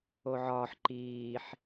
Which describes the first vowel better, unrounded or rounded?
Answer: rounded